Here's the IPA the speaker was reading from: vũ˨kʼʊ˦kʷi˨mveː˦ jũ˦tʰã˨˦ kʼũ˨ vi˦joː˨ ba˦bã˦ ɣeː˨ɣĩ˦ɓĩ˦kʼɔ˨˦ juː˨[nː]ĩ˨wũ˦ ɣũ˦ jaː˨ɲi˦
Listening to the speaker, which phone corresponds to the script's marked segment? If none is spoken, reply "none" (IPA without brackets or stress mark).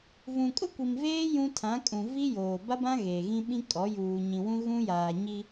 ɲ